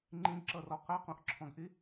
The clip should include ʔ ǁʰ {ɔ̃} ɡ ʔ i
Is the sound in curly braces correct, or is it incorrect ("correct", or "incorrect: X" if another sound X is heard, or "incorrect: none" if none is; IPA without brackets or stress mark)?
correct